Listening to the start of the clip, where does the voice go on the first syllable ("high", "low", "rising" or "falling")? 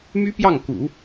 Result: high